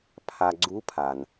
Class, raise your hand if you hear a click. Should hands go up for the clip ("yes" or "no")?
yes